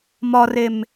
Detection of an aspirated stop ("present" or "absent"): absent